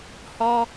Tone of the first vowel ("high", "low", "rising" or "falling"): high